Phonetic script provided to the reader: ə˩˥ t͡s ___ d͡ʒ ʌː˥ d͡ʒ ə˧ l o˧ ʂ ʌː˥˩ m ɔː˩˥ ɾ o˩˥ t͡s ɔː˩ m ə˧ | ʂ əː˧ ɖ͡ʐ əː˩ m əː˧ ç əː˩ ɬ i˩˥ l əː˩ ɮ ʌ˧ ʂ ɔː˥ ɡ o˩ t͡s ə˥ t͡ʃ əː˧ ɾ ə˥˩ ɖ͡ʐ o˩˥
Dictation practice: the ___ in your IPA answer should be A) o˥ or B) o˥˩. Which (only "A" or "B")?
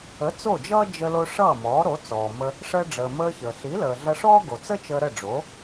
B